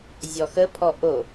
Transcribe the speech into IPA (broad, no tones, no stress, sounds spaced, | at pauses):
zʲ ɔ x ə pʰ ɔ ʔ o